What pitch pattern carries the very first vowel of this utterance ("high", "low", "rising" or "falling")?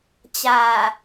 low